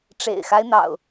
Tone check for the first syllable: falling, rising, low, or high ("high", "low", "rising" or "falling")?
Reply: low